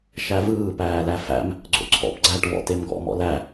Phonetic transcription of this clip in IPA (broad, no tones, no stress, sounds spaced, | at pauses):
ʃ æ v ɯː p æː l æ f æ̰ m | ɡ͡ǀ o̰ ǀʰ ɔ̰ p ɡ͡ǀ æ ʈ v ɔ̰ t e m ɡ ɔ̰ m ɔ̰ l æ